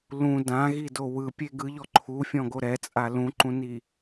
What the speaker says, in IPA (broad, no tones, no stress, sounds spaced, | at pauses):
l ũ d ã ɣ i d o w ɯ pʲ e ɡ ɯ ʎ ɔ ǃʰ u fʲ ɔ̃ ɡ o ɾ ɛ t͡sʼ a l ũ ǃ ũ n i